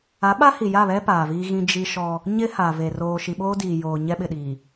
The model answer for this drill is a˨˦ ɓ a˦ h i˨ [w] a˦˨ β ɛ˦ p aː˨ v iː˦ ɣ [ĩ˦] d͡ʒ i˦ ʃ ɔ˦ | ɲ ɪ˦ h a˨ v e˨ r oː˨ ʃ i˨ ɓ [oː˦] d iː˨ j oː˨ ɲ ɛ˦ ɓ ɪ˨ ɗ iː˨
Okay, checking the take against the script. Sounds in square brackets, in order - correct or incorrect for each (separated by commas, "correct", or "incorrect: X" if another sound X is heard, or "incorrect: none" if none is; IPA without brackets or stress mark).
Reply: incorrect: j, correct, correct